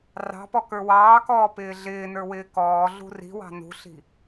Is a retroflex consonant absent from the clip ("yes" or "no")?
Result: yes